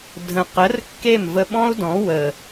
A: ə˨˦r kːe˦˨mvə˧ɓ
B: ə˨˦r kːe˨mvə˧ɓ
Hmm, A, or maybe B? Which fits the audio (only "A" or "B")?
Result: A